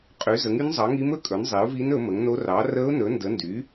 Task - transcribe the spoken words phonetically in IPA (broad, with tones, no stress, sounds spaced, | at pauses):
qʼ y˩˥ z ə˩˥ ŋ y˧˥ n zˤ ɑ˩˥ ŋ i˧˥ m ɵ˧˥ kʼ ɵ˩˥ n zˤ i˩˥ ʊ̯ v i˧˥ n ɵ˩˥ m ə˩˥ ŋ n o˧˥ r ɑ˩˥ r ə˧˥ ʊ̯ n ɵ˩˥ n d ə˩˥ n d y˩˥